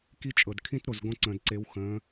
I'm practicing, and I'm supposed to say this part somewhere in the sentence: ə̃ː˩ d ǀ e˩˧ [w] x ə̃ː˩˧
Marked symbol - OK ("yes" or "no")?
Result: yes